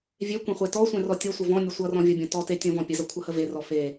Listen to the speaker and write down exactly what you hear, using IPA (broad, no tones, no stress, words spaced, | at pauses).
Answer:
vʲekʷẽ χʷetɔsʷẽ rɔtʲʌsʷə vɔ̃nʲə sʷʌrɔ̃ vʲʌbʲɔ̃ tɔte tʲɔ̃vɔ̃pʲəzʌ kʷʰʌhəverɔ fe